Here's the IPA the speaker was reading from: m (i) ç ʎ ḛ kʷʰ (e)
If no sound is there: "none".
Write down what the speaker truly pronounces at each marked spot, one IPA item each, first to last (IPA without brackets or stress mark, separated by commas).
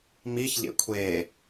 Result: i, e